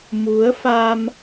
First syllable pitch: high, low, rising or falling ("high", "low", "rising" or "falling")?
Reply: rising